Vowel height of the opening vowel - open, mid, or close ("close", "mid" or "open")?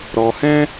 mid